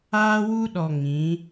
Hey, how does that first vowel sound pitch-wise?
high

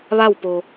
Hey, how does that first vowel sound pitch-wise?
falling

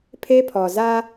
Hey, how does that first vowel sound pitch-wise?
high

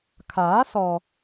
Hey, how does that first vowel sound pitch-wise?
rising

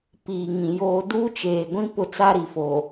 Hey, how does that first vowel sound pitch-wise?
low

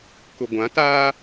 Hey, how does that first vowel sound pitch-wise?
low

